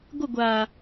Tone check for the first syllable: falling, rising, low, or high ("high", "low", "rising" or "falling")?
falling